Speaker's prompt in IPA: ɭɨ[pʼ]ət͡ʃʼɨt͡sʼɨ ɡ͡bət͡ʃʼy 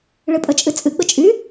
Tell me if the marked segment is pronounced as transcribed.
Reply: yes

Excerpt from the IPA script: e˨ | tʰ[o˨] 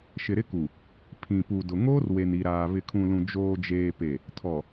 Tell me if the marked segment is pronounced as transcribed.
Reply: no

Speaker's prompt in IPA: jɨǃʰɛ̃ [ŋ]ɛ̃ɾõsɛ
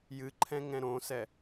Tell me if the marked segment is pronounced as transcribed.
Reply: yes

